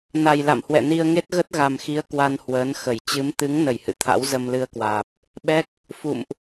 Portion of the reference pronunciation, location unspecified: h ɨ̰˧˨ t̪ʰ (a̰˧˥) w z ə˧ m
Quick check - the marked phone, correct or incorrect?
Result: correct